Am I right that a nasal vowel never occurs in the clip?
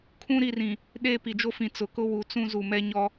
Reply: no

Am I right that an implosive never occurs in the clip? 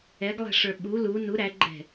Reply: no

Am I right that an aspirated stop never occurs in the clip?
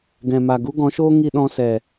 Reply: yes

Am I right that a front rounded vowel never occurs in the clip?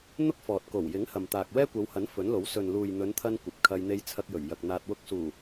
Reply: yes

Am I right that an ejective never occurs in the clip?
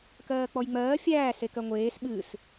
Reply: yes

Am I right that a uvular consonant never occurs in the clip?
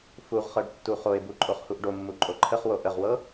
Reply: no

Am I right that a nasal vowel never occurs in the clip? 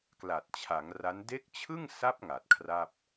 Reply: yes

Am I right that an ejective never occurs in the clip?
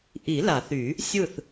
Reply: yes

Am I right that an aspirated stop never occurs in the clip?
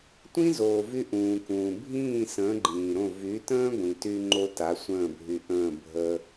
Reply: yes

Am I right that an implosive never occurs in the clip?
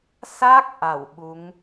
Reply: no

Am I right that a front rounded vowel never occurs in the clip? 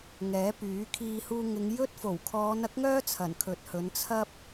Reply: no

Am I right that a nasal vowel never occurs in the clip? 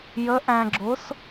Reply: no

